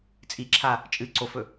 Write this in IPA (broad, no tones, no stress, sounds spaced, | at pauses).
t͡sʼ i ǁʰ a | t͡ʃʼ ɨ ǀ o f ɵ